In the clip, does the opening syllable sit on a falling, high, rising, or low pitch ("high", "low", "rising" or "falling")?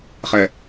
low